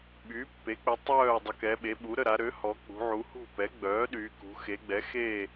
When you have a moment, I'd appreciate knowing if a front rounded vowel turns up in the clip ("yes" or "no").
yes